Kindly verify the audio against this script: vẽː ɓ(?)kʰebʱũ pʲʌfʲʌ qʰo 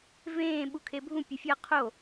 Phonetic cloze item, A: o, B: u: B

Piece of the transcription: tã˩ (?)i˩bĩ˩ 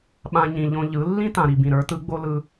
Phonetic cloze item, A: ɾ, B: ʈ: A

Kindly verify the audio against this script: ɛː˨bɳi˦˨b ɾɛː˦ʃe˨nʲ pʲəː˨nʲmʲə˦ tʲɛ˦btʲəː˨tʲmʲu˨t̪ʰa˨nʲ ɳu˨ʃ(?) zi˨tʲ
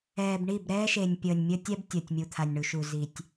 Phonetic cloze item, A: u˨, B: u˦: A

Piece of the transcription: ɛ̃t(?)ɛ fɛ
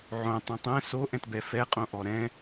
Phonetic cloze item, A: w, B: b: B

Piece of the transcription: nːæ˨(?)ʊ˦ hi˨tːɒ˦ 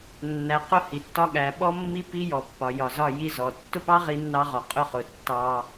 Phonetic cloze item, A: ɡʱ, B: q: B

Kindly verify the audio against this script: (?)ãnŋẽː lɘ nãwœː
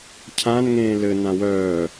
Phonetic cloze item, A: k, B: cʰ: B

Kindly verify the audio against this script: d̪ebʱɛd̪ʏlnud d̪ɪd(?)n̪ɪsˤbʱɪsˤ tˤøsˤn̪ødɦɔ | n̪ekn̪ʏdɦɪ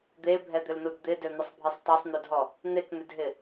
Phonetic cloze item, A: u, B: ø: B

